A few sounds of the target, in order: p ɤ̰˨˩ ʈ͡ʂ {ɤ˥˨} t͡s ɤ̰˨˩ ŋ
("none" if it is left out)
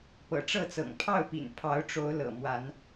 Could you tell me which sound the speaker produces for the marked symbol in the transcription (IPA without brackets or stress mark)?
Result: ɤ˥˨